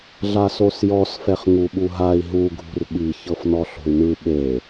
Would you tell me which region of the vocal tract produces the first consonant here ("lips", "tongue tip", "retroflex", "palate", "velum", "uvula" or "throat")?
tongue tip